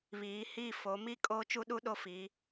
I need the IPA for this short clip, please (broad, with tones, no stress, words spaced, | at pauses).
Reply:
βiː˨˦hi˦˨ fo˨˦mi˦ kʼoː˦t͡ʃu˦ɗu˦ ɗo˦fi˨˦